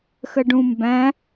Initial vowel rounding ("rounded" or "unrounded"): unrounded